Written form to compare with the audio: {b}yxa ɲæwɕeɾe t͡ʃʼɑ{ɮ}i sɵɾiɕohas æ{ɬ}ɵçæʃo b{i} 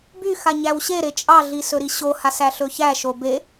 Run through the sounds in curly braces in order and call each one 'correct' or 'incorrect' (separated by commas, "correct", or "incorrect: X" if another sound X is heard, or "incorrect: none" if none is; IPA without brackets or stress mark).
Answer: correct, correct, correct, incorrect: e